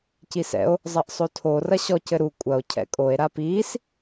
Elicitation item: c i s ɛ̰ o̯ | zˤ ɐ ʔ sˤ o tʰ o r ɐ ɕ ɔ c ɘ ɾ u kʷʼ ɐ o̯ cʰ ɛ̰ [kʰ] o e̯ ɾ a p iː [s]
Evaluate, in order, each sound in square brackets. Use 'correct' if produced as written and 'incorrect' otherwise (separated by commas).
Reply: incorrect, correct